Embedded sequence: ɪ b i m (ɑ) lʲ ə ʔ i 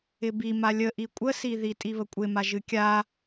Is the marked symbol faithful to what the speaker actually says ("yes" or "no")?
no